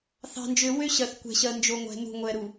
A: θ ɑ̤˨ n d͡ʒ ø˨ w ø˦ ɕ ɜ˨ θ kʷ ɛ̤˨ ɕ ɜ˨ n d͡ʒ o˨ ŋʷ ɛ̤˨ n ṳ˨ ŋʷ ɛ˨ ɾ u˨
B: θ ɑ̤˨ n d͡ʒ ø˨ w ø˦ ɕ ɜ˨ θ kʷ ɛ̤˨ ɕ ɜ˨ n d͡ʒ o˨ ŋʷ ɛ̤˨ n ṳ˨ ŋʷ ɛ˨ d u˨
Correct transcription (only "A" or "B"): A